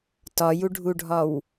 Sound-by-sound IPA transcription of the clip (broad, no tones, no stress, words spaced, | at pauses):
tɒjuɖʱuɖʱɒw